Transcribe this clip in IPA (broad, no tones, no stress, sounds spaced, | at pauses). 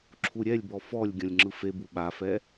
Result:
ǁʰ u ɾʲ ɛ lʲ b ɔ f ɔ lʲ ɡʲ ɔ̃ lʲ ŋ͡ǁ ɯ f e b u ɓ a f ɛ